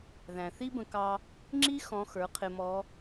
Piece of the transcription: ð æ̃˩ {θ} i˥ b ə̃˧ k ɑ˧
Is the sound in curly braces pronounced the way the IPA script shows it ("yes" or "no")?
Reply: yes